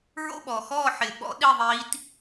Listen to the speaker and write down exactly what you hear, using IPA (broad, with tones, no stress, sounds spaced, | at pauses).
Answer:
ɹ o̰˥˨ ɓ ɔː˩ x ɔː˥˨ ħ ɪː˩ ɓ ɔ̰˧˥ ɗ i˥˨ ðˤ iː˧˥ t